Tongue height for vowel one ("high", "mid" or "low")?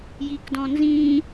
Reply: high